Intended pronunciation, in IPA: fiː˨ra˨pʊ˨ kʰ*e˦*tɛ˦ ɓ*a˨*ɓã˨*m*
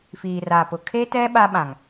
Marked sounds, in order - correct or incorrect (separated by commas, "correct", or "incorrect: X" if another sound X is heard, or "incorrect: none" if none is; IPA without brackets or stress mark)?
correct, incorrect: a˦, incorrect: ŋ